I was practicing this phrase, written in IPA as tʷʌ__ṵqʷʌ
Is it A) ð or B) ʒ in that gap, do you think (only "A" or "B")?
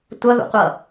A